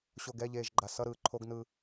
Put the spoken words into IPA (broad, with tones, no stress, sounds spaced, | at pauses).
ɕ o˨ ɡ ɛ˦˨ ʎ eː˨ ʒ ɡ͡ǃ a˨ s ʌ˦ ɾ ɯː˨ ǃʰ o˦ ɡ n ɯː˦